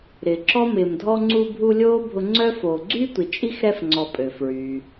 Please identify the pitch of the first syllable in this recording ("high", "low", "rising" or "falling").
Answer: low